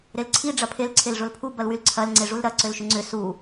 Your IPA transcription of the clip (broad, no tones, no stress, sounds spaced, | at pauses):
ɾ e l ǀʰ i ɖ͡ʐ ɐ pʰ e l ǀʰ e l ʐ ʊ l pʰ u b ɐ l w y l ǀʰ ɐ l ŋ͡ǀ e ʐ u l ɾ ɐ ǀ ʏ l ʃ ʏ ŋ͡ǀ ʏ s u